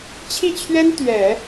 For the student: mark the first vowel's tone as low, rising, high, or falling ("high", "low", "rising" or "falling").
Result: falling